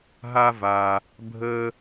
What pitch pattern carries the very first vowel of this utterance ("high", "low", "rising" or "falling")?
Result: high